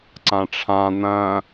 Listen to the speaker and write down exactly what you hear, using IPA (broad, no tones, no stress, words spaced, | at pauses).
ǀãʈ͡ʂʰã n̪ɐ̃